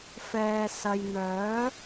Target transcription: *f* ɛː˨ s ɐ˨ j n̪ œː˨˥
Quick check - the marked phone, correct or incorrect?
correct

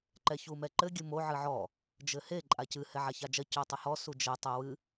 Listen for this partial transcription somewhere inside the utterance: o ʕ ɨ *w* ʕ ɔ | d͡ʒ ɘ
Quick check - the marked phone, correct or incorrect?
incorrect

